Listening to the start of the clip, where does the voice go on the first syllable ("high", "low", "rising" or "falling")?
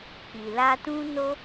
low